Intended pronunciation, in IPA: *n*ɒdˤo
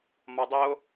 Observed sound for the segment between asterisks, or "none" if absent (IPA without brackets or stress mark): m